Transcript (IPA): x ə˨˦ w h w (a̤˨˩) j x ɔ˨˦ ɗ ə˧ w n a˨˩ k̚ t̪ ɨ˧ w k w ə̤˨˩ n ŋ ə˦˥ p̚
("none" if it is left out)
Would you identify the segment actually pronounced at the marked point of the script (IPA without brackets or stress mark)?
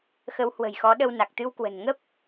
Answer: ə̤˨˩